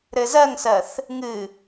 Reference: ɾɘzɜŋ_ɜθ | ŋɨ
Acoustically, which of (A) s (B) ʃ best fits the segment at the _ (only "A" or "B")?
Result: A